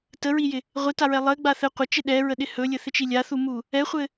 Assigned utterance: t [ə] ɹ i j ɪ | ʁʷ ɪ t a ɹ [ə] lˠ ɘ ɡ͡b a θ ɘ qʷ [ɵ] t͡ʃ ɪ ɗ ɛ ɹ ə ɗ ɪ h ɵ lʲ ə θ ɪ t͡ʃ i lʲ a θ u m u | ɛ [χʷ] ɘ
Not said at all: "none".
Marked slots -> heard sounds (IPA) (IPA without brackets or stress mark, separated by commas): ə, ɛ, ə, χʷ